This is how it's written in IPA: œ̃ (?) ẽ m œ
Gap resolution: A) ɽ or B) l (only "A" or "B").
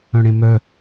A